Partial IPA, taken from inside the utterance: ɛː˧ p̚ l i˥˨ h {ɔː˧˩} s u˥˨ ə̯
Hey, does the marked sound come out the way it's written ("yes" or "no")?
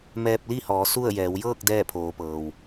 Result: no